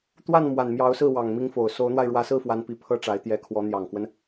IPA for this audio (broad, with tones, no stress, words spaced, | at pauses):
t̪wa˥˩n mwa˨˩nmjɑ˧˥ʊ̯sɹ̩˥˩ wɑ˨˩ŋmi˧˥ŋfo˨˩ʊ̯ so˧˥ʊ̯n̪wa˧ɪ̯ ɻwä˧˥sɹ̩˥˩fwa˧˥npi˨˩ pʰɤ˥ʈ͡ʂa˧˥ɪ̯ t̪jɛ˧˥kʰwɔ˧˥ n̪jɑ˨˩ŋkwə˦n